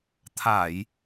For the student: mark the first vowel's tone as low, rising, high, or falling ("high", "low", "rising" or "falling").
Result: low